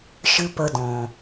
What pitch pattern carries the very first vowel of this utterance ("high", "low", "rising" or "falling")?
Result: high